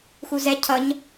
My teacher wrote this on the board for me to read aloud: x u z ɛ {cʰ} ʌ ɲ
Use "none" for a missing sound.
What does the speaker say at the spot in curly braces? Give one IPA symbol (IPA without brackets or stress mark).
cʰ